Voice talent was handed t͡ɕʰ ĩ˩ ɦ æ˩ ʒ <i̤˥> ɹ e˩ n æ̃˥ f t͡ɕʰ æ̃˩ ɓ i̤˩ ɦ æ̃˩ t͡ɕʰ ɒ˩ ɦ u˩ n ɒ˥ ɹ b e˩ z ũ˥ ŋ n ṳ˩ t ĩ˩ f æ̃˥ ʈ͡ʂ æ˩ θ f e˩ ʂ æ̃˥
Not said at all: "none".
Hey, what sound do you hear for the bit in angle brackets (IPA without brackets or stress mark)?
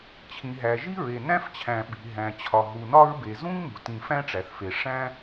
i˥